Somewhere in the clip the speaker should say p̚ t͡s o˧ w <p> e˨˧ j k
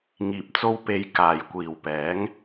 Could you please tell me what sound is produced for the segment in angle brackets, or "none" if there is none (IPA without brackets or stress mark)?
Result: p